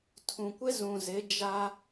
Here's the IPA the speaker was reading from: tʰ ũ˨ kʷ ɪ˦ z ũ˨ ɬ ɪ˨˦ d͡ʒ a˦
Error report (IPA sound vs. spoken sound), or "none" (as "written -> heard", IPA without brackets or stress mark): ɬ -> z